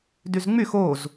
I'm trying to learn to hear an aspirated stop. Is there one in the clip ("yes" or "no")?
no